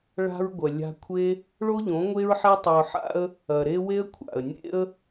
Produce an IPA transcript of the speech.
ɭ a̤˧ ɹ ɡʷ ɐ˨ lʲ a̤˧ kʷʰ e˦ | ɭ o˦ ʎ õ˨˦ ŋʷ e˦ ɹ ħ e˦ tˤ ɐ˧ ʊ̯ ħ a̰˦ ə̯ | ɐ˨ ɾ e˦ w e˦ ə̯ kʷʰ a̰˨ ə̯ nʲ ḛ˦ ə̯

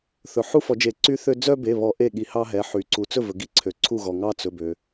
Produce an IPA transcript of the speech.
θ ɵ˩ ħ u˥ f ɔ˨˩˦ d͡ʒ e˨˩˦ ǀ y˥ θ ø˥ d͡z œ˥ b e˩˧˩ β ɔ˨˩˦ ʔ e˥˩ ɠ i˨˩˦ h ɑ˥ ɦ ɛ˩˧˩ ħ y˩ ǀ u˩ t͡s ɵ˥˩ v ɵ˩ ɡ i˥ ǀʰ ø˩ ǀʰ u˥˩ ɣ ɔ˩ ŋ ɑ˥ t͡s ɵ˩˧˩ b ø˩

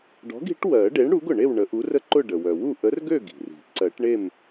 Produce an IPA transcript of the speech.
ɖ ɔ̤˨˥ ɡ i̤˨˥ ʈ w ɜ˨˩˦ ɖ e˨˥ ɳ ɽ u˨˥ ɡ ʊ˩ ɳ e˥˨ w ɳ ə˨˩˦ ʔ u˨˥ r ə˥˨ ǃ ʊ˥˨ ɖ ə˩ w œ˩ w u˥˨ ʔ ə˨˥ r ɡ ø˥˨ ɡ i̤˩ r i̤˨˩˦ ǀ ɜ˨˩˦ ʈ ɳ e˥˨ m

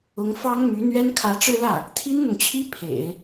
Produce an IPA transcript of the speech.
ʊ˧˥ ŋ f ɑ˥ ŋ m y˧˥ n̪ ɥ ɛ˥ n kʰ ä˧˥ ʈ͡ʂ ɻ̩˥˧ l ä˥˩ | t̪ʰ i˥ n n̪ ʊ˨ ŋ t͡ɕʰ i˥ pʰ ḛ˨˩˦ ɪ̯

